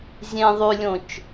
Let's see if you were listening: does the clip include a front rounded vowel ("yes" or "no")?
yes